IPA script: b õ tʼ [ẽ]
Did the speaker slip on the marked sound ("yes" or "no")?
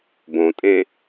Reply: no